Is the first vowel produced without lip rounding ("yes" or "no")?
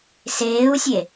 yes